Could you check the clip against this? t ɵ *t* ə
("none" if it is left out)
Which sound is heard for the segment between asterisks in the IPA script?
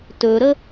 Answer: ɾ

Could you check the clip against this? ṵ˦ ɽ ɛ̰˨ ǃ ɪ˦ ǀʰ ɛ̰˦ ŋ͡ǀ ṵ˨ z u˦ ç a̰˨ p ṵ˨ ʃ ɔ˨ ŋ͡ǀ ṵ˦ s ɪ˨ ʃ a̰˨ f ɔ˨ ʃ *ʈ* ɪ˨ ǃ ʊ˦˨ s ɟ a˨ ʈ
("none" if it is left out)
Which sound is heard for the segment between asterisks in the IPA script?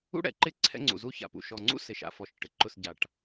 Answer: ʈ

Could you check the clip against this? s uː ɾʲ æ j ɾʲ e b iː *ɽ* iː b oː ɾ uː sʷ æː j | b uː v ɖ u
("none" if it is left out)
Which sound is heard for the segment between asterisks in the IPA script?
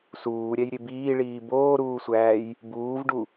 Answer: ɭ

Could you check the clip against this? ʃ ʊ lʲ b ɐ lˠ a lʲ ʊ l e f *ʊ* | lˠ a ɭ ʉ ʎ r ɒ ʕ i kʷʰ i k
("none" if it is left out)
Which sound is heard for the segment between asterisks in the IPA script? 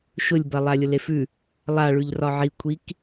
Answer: ʉ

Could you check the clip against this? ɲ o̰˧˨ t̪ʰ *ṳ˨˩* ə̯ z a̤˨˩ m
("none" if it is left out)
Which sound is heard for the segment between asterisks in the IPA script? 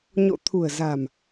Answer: ṳ˨˩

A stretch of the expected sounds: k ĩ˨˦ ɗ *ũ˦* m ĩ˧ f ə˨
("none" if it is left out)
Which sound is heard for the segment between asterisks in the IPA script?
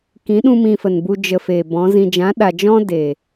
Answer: ũ˦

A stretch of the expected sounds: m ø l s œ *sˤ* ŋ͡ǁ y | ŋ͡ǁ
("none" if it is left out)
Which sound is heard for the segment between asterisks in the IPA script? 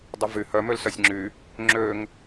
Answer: sʲ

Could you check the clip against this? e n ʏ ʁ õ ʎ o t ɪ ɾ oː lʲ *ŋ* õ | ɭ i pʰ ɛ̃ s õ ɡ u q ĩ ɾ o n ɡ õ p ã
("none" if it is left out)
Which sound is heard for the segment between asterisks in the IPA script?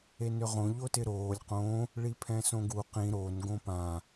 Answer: q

